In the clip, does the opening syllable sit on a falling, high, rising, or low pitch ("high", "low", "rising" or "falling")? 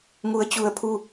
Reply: rising